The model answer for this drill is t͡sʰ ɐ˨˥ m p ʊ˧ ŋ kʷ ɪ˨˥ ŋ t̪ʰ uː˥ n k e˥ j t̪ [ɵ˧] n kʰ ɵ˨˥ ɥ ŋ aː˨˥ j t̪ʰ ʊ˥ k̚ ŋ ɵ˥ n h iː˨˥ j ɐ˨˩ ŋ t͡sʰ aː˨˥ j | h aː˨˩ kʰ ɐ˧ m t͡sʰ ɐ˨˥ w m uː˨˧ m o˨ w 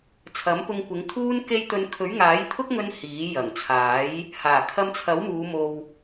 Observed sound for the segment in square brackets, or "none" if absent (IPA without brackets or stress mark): ɵ˧